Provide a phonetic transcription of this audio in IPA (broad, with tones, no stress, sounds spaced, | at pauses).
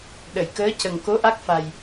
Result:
ɗ ə˨˩˨ j k əː˧˥ c ə˨˩ ŋ k o˧˥ ʔ a˦˥ k̚ f a˨˩ j